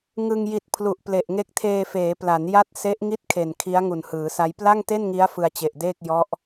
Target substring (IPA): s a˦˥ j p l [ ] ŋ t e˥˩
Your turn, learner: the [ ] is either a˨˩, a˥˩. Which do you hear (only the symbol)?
a˥˩